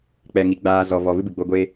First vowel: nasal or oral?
oral